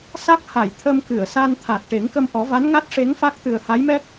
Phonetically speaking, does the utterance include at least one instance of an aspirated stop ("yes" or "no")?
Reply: yes